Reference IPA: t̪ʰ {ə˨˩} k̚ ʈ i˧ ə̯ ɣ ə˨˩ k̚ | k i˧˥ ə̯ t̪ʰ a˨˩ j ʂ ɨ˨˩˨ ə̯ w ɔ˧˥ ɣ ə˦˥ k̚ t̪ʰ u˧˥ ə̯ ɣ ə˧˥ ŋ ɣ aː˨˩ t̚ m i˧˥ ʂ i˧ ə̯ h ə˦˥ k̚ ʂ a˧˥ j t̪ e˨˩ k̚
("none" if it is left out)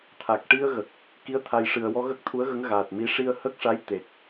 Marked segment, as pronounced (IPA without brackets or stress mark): a˨˩